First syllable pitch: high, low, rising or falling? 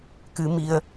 rising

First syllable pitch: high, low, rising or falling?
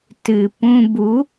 low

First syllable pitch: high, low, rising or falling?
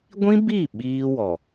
high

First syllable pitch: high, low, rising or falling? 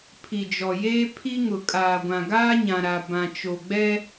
low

